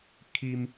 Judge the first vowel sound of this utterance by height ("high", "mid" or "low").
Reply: high